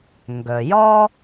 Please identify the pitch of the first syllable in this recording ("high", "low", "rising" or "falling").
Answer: low